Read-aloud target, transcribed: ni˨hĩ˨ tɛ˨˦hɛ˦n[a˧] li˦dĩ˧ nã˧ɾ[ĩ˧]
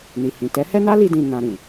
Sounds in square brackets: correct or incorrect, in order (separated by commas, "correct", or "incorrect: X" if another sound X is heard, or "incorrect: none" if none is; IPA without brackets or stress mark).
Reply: incorrect: a˦, incorrect: ĩ˨